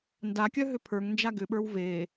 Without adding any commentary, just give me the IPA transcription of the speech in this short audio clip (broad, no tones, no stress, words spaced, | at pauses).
ndakʲœ ɦʏpʰə˞ŋnd͡ʒa ɡʏɓə˞w ve